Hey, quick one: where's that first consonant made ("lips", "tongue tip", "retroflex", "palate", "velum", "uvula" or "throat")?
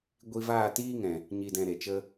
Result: velum